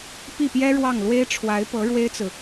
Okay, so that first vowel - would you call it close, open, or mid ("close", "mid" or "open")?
close